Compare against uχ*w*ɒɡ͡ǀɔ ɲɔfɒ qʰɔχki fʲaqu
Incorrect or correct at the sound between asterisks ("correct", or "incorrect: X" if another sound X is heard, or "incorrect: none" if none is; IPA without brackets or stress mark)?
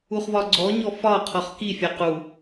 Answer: incorrect: v